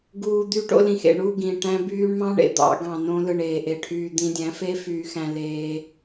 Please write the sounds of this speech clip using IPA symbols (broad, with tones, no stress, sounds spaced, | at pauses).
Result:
ɡ uː˨ d̪ y˧ ʈ o̰˧ l ĩ˨ x ḛ˨ ɳ u˦˨ ɡ ĩ˨ ʈ æ̃˧ b yː˧ ɳ m ɑ̃˦ ɳ ḛ˧ d̪ ɑ̰˨˦ ɡ ɑ̃˨ n õ˧ l ɯ˨ ɳ eː˨ ʔ e˧ ʈʰ yː˧ d̪ ĩ˧ dʲ æ̃˨˦ f e˦ f yː˧ x æ̃˧ l eː˧